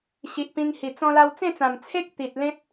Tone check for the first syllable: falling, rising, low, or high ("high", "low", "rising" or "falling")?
low